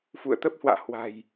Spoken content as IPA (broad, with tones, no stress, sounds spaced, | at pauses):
f ṵ˧˨ ə̯ t̪ ə˦˥ p̚ h w a̰ː˧˨ h w a̤˨˩ j